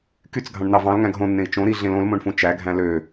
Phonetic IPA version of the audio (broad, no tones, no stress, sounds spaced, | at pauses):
k y t͡s ɡʱ ɑ̃ ɳ n̪ ɑ v ɑ̃ l ŋ æ̃ ɡ ɦ õ nː ẽ i̯ t͡ʃ õ ɾ i ɮ ẽ l õ l m õ ɳ f ũ t͡ʃ æ ɡʱ æ̃ l ø